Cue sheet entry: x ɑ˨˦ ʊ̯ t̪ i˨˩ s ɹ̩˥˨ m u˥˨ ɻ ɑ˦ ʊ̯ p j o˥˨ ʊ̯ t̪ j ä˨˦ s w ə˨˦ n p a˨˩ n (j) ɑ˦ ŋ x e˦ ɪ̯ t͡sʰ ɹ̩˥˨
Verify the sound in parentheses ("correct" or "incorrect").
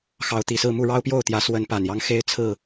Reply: correct